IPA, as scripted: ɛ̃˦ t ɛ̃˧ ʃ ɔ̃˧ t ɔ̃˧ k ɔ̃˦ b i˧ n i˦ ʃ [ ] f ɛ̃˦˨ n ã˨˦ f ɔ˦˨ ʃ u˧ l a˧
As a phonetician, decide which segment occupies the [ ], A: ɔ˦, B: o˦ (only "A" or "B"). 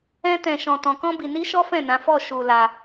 A